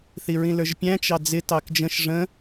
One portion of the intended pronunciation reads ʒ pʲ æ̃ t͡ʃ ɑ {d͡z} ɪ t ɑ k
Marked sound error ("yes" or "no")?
no